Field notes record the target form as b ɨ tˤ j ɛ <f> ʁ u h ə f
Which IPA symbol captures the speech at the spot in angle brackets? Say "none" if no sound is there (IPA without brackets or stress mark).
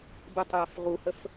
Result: f